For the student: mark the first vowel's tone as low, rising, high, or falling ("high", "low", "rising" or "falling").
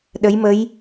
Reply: rising